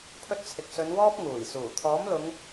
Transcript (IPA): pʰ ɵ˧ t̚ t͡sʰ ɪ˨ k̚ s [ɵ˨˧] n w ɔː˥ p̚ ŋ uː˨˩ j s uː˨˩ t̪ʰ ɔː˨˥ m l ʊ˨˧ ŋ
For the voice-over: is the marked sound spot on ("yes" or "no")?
yes